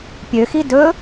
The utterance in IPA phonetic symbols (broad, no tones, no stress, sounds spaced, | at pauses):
pʲ ø x i d ɵ